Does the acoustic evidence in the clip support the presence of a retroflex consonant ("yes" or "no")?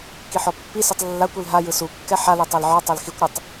no